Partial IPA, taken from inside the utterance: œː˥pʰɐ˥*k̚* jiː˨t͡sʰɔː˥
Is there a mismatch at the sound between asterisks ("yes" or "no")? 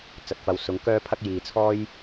no